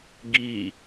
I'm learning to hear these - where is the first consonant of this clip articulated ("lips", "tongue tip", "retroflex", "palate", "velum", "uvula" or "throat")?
velum